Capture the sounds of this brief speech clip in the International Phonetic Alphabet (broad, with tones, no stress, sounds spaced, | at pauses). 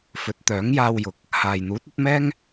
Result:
f ɵ˨˥ t̚ t̪ œː˨˥ ŋ j aː˧ w j ʊ˨ k̚ | h aː˨ j n̪ uː˨˥ t̚ ɐ˨˥ t̚ m ɛː˥ ŋ